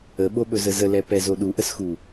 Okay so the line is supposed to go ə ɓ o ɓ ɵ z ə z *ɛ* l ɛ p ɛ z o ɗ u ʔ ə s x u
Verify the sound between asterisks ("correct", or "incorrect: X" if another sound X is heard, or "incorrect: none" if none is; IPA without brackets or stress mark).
incorrect: ə